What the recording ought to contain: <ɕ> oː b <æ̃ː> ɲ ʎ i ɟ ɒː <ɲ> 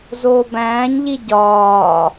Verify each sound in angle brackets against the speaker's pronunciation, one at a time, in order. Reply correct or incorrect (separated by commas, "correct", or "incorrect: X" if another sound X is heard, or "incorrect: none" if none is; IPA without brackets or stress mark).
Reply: incorrect: z, correct, incorrect: none